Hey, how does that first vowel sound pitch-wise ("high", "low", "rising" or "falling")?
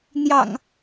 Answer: low